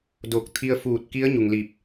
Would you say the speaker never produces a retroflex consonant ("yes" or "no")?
yes